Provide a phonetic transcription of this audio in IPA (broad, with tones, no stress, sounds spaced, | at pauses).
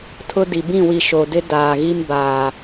tʰ ʊ˦ d i˨ b ĩ˦˨ w i˨ ʃ o˨ d ɪ˦ d aː˨ ɣ i˦ m b aː˨